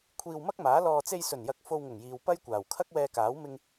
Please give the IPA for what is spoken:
kʷʰiː˧wmɐ˥k̚maː˨˥lɔː˧ t͡se˧jsɵ˨˩njɐ˨˥k̚ fo˧wŋʊ˨˩ŋjiː˨w pɐ˥jkʷaː˨˩w kʰɐ˥k̚wɛː˧kaː˨˥w mɪ˧ŋ

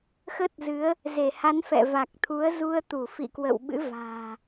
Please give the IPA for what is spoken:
xə˦˥t̚ zɨ˨˦ə̯ | ze˧˩ha˨˦nfɛ̰˧˨va˨˩k̚ t̪ʰu˨˦ə̯zu˧ə̯t̪u˧˩ fḭ˧˨kwə̰˧˨wɓɨ̰˧˥ va̤ː˨˩

